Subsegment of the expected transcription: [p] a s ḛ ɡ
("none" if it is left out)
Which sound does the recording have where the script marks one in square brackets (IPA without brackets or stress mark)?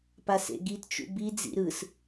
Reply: p